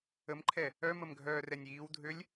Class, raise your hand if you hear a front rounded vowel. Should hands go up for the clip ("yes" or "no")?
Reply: yes